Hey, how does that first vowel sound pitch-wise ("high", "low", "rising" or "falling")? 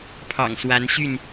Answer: low